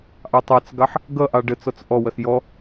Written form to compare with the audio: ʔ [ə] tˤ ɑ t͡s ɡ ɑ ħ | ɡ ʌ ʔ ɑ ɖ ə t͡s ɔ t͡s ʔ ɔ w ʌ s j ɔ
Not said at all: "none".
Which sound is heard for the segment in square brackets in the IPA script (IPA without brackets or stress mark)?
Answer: ɑ